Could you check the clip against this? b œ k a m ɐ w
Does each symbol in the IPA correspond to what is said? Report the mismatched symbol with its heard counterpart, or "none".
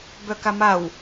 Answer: ɐ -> a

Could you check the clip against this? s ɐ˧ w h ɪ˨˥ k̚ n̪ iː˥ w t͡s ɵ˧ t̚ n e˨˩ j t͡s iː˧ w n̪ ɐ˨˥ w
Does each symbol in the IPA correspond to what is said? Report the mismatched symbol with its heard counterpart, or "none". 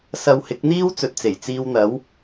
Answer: n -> t͡s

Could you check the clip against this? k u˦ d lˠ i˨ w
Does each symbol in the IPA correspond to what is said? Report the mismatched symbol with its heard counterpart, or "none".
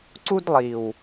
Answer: k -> ǀ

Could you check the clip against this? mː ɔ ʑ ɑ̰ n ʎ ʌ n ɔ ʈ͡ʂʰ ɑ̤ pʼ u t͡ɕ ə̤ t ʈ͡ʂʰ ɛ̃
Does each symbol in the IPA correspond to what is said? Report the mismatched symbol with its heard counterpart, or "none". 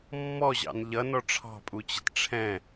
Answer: none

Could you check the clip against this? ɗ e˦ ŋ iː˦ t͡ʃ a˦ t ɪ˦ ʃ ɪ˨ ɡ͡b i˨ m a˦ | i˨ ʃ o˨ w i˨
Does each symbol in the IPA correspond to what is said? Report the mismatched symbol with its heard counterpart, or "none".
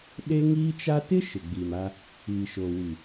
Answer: none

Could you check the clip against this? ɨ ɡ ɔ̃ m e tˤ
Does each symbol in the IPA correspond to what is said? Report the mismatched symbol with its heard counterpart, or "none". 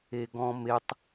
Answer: ɨ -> e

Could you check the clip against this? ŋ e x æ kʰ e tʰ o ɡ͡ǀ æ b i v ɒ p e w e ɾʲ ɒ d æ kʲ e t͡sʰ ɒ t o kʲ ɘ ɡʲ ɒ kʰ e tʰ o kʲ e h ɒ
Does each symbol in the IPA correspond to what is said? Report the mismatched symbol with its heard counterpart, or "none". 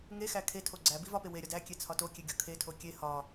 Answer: ɘ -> e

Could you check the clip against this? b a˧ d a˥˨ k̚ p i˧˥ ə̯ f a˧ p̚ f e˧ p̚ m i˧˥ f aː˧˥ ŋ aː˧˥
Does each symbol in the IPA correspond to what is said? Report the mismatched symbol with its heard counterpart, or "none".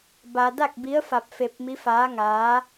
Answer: p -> b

